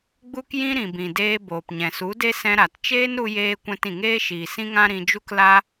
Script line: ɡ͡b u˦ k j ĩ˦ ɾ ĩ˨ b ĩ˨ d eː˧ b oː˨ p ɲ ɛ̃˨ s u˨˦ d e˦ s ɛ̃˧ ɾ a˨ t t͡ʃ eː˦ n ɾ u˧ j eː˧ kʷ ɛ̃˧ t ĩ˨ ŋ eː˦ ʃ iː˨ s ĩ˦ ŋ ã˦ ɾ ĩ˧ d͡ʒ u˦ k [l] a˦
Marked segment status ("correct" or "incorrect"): correct